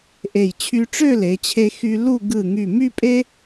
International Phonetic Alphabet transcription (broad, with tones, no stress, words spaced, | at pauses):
ʔe˧˩j t͡ɕʰy˧ʈ͡ʂø˥˧le˩˧t͡ɕʰe˧ xy˧ lu˥˧ ɡɯ˧˩ŋy˧˩ my˥˧pʼe˥